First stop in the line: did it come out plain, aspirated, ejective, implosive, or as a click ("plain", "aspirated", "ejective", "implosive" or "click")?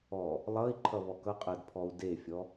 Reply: click